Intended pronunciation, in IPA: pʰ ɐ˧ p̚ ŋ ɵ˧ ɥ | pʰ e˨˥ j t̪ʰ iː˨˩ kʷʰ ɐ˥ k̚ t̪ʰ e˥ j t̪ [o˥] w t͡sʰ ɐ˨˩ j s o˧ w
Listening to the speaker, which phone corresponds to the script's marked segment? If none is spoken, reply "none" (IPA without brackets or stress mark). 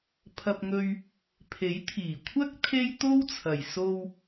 o˥